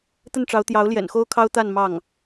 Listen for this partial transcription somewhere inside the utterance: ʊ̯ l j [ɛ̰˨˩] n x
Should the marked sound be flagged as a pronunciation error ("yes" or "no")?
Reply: no